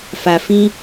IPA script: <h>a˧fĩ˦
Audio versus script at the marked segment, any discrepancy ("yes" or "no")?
yes